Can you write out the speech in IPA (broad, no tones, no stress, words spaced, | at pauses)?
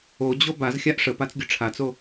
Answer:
od͡ʑo bazxʲaʔ ʂəpat͡sɡʲʊ ʈ͡ʂʰat͡so